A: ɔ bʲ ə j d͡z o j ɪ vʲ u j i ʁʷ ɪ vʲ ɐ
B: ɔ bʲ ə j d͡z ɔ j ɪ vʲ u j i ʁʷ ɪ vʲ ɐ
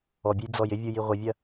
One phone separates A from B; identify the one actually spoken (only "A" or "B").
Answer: B